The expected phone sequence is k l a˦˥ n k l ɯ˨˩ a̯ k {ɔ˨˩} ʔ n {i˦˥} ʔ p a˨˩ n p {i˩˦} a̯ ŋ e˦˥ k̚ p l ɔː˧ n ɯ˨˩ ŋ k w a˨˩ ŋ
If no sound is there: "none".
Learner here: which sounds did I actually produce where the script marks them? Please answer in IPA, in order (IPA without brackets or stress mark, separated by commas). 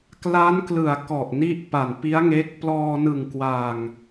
ɔ˨˩, i˦˥, i˦˥